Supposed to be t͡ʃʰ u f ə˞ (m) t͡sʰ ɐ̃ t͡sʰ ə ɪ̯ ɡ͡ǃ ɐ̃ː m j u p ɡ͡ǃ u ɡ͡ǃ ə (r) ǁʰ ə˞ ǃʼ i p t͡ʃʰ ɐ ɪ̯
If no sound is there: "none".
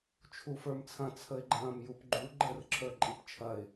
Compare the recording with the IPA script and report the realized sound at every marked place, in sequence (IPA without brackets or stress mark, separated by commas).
m, r